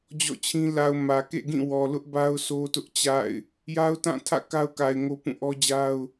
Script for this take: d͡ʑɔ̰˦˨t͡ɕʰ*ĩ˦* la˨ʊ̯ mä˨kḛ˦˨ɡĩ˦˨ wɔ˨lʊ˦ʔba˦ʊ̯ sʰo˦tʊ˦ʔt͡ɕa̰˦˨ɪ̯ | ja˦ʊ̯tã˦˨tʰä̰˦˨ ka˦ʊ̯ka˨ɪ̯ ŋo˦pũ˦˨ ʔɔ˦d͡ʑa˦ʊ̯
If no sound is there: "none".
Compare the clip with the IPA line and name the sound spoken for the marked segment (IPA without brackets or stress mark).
ĩ˦